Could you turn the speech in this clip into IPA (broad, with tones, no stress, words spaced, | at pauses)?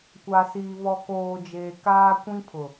kʷa˨ siː˨ βɔ˨koː˨d͡ʒeː˨ kaː˦kʷĩ˦pʰʊ˨